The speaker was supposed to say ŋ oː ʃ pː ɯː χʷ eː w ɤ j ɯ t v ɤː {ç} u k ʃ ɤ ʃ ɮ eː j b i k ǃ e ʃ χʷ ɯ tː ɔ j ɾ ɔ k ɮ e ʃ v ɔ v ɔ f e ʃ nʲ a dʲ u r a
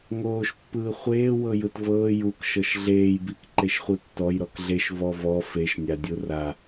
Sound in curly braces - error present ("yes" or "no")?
yes